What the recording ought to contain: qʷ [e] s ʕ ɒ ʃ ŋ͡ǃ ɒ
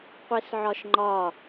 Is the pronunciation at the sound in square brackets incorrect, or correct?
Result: correct